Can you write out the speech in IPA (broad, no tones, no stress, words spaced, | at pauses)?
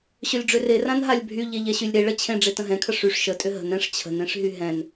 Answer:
ɕølʲɖ͡ʐøre rãnɦalʲbʱy ʎeʎɛɕylʲɾe ɭət͡ɕʰẽ ɖ͡ʐetə̃ɦɛ̃kʰə ʂyʂ ʃətʼʏ ɦə̤n ɛ̃ʂ t͡ɕʰə̤nẽʂɦy ɦɛ̃n